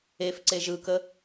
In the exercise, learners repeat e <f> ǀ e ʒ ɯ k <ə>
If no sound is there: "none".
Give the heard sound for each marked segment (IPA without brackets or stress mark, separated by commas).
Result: f, ə